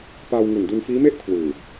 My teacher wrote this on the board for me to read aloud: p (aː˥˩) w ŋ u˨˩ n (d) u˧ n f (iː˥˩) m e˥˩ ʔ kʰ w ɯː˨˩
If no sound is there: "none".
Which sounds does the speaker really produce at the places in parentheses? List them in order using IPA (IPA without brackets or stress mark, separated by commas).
aː˧, d, iː˦˥